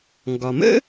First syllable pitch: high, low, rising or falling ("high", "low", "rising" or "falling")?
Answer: low